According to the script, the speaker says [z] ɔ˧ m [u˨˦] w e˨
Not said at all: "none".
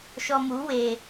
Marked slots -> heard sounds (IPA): ʃ, u˨˦

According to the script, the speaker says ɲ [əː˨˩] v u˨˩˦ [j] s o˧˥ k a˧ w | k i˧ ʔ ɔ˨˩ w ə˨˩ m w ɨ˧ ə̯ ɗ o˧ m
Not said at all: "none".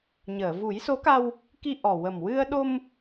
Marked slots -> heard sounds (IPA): əː˨˩˨, j

